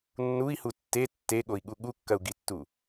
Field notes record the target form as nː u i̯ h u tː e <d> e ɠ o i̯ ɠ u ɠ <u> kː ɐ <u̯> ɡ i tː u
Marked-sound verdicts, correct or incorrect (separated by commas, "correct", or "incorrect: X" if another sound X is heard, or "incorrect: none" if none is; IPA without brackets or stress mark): incorrect: tː, correct, correct